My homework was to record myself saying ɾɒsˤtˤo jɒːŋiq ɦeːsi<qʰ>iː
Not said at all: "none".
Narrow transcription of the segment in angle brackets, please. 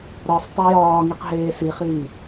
χ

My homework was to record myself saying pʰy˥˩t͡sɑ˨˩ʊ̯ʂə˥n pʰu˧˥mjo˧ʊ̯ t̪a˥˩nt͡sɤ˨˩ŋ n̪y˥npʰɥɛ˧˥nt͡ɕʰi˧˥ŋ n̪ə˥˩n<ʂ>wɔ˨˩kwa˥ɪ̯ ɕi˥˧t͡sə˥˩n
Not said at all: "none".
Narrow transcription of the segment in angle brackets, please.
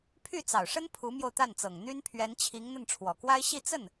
ʈ͡ʂʰ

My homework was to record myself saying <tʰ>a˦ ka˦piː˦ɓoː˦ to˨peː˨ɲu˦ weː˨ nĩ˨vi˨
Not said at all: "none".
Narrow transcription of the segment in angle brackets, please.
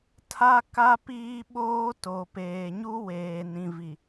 tʰ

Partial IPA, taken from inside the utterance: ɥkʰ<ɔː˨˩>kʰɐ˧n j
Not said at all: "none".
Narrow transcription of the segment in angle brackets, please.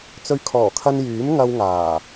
ɔː˨˩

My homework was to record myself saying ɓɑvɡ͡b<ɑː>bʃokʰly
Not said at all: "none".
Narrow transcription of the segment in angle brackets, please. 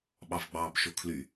ɑː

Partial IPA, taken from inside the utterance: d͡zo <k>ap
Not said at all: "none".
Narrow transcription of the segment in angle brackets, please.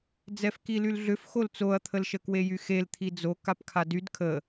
k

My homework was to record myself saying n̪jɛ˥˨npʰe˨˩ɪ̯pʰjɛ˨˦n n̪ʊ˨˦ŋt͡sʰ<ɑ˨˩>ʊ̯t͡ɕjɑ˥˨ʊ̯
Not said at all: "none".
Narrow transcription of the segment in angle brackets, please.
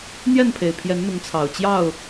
ɑ˨˩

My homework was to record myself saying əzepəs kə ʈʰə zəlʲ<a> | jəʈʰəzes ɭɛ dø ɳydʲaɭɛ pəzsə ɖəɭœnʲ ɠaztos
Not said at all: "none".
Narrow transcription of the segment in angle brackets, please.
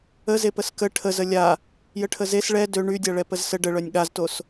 a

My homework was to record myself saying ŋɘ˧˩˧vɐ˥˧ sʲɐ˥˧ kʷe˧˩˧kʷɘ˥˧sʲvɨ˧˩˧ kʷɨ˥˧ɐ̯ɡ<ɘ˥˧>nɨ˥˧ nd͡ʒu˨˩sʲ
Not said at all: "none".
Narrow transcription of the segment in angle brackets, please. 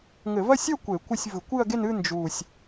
e˥˧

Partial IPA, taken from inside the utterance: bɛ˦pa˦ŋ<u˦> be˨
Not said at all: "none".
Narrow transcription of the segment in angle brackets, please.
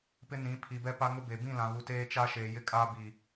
ʊ˦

